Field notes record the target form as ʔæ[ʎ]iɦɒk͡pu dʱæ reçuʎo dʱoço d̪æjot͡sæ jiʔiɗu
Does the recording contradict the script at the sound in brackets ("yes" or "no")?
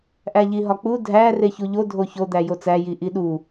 no